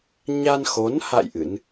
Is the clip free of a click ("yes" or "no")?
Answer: yes